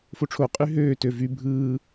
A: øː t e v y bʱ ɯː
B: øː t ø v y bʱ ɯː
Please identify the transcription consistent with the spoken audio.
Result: B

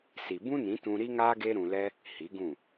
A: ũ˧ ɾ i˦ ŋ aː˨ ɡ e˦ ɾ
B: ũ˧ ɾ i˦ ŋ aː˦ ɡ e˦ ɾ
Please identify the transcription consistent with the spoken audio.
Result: B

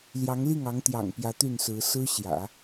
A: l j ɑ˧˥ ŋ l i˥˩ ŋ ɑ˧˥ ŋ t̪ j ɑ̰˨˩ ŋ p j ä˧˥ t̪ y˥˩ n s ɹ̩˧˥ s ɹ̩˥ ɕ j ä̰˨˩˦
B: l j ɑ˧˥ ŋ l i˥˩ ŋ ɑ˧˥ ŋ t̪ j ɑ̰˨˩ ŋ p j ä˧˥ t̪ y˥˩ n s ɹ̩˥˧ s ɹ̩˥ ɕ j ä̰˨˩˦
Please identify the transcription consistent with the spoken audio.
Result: A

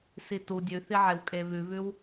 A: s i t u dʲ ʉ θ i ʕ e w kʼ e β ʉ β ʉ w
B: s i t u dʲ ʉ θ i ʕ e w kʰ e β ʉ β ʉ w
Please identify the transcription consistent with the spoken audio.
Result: A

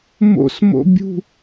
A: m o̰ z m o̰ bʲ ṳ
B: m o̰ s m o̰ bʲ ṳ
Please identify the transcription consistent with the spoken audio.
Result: B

